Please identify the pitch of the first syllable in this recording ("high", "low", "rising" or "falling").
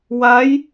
rising